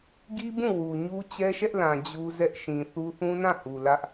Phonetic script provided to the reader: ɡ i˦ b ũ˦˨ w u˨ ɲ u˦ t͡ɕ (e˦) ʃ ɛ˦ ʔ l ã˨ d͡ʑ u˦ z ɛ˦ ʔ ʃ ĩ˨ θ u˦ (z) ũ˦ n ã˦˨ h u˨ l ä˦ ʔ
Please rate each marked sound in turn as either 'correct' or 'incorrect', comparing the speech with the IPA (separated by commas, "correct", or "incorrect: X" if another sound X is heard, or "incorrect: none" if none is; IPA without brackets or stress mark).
incorrect: ɛ˦, incorrect: θ